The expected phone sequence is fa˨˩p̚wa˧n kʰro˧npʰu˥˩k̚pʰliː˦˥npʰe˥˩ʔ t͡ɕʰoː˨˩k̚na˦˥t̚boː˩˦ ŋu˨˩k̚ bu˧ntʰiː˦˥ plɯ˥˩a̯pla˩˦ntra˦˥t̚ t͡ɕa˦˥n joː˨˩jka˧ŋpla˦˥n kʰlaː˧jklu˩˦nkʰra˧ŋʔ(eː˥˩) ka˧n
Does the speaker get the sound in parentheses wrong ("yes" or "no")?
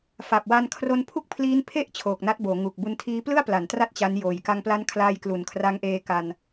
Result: yes